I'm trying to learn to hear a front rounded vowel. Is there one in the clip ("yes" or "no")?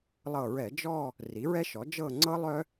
yes